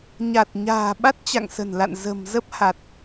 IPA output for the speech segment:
ɲ a˨˩ t̚ ɲ a̤ː˨˩ ɓ a˦˥ t̚ t͡ɕ a̰˧˨ ŋ s ə̤˨˩ n l a̰˧˨ n z ə̤˨˩ m z ə˦˥ p̚ h a˨˩ t̚

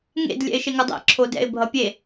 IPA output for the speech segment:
ŋ ḛ d lʲ ɛ̰ ɪ̯ ʃ e ŋ ʌ dˤ ɛ̰ ǁʰ o d ɛ̰ ɪ̯ bʱ ʌ pʲ e

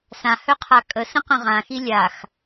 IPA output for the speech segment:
s ã h œ qʰ a kʼ ə s ə̃ q ə̃ ʁ ã x i lʲ a x

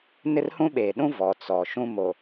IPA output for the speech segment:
n ɪ˦ r h ũ˦ ɓ eː˨ ɗ ũ˦ v ɔ˨ t͡s ɔ˨ ʃ ũ˦ m o˨

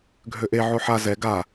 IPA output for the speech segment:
ɡʱ ø ʔ e ʕ o ħ a z ɛ ɡ a

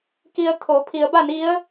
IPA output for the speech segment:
k i˧ ə̯ t̪ʰ o˩˧ pʰ i˩˧ ə̯ b a˥˨ n i˧˥ ə̯

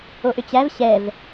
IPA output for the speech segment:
o ʔ ʏ t͡ɕ æ v ɕ ɛ v

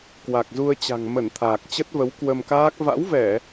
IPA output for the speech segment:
k w a˨˩ k̚ z u˧ ə̯ t͡ɕ a̤˨˩ ŋ m ə˧˩ n t̪ʰ aː˨˩ k̚ t͡ɕ ə˦˥ t̚ v ə˨˦ w k w ə˧ m k aː˦˥ k̚ v a̰˧˥ w v ɛ˧˩˨

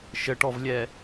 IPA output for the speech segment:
ʃ ə ʈ ɔ v lʲ ɛ

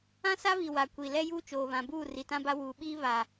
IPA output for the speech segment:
ã˦ s a˦ β i˨ w a˨ kʷ i˨ l ɛ˦ j uː˦ t͡ʃ oː˨ β ã˨ b uː˦˨ r i˨ t ã˦ b a˦ w uː˨ ɓ iː˦ β a˨

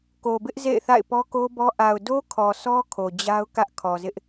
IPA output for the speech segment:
k o˨ b ɪ˦ ʔ z ḛ˦˨ ɪ̯ θ a̰˦˨ ɪ̯ p ɔ˦ k o˦ b ɔ˦ ʔ a˨ ʊ̯ d o˦ kʰ ɔ˨ sʰ ɔ˦ kʰ o˨ d͡ʑ a˦ ʊ̯ k ä˦ ʔ kʰ ɔ˨ z ɪ˦ ʔ

